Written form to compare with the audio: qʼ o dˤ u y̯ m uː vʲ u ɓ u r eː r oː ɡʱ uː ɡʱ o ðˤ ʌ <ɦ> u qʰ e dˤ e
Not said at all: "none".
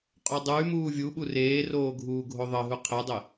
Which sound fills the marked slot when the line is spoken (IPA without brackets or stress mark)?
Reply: ɦ